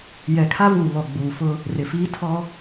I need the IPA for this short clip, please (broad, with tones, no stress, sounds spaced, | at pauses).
j ɛ˨ kʰ a˦ v uː˨ β ɔ˨ ɡ͡b uː˨ f ʊ˦ | r ɪ˨ f iː˦ tʰ ɔ˦